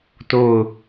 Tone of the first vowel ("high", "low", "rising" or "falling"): falling